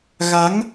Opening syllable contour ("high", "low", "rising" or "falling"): rising